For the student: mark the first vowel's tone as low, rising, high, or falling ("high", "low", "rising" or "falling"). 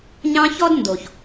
high